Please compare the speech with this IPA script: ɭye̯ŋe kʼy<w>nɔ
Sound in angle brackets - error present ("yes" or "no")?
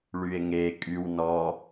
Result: no